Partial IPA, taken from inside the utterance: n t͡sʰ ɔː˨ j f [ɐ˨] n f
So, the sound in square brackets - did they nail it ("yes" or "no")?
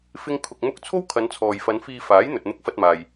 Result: no